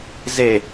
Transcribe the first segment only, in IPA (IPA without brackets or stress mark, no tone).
z